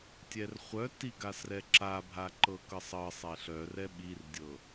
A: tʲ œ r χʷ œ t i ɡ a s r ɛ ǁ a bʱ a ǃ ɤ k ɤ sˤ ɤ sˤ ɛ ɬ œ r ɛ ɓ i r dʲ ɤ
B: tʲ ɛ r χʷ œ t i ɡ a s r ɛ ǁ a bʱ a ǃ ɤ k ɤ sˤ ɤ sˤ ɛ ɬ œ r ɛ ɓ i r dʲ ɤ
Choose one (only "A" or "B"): B